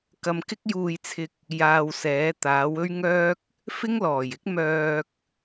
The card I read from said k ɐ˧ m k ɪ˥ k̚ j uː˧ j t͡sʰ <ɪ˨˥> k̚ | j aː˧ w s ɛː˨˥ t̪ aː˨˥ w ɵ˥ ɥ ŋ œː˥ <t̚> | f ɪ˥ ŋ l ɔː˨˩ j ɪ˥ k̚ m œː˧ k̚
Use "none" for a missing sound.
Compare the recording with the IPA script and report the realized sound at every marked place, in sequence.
ɪ˧, k̚

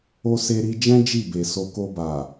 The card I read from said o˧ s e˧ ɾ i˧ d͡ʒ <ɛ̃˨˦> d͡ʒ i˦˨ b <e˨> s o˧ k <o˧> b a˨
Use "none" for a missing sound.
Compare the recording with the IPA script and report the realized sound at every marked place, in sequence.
ɛ̃˦, e˨, o˧

